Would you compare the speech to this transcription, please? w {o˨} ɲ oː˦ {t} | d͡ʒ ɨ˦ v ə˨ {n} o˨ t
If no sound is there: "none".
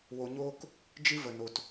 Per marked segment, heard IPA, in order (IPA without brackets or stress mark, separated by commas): o˨, k, n